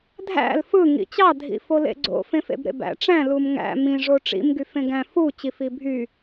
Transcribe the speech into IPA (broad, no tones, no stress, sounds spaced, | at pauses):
dʱ æ̰ l f ɯ ŋ ḭ t͡ɕ ɑ dʱ ḭ f o l ḛ ɡ͡ǀ o̰ f ẽ f ḛ b ɾ ḛ b æ̰ ʈ͡ʂ æ̃ l u m ŋ æ̰ m ĩ ʐ o ʈ͡ʂ ḭ m ɡ y f ẽ ɡ æ̃ f u t͡ɕ i f i bʱ y